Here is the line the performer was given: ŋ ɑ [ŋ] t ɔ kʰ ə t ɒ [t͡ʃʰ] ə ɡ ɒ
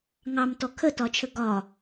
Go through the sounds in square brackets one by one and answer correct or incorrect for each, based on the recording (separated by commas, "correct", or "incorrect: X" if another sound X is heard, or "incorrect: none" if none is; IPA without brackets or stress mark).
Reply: incorrect: m, correct